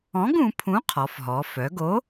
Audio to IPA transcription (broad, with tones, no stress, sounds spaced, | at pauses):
ɔ̃˨˥ ɡ ũ˩˧ pʰ ũ˨˥ qʰ ɔ˩˧ f ɦ ɔ˩˧ f œ˩˧ ɡ o˨˥